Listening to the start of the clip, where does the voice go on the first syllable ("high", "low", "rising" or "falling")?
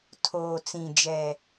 low